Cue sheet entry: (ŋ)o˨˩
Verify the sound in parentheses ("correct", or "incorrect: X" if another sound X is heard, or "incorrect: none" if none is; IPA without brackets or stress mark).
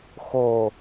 incorrect: x